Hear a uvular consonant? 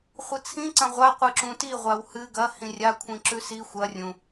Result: yes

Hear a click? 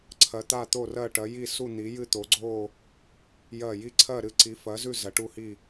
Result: yes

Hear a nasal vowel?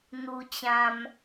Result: yes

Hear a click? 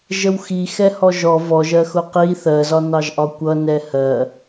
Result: no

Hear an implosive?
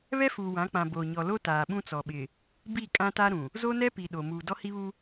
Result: yes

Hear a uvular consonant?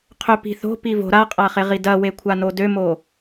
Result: yes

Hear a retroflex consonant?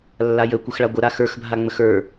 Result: yes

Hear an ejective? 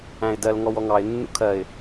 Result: no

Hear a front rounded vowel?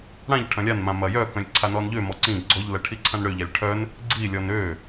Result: yes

